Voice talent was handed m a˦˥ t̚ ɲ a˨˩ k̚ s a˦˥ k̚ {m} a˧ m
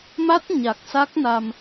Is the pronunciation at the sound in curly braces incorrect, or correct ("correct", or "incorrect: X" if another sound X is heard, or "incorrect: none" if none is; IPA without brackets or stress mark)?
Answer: incorrect: n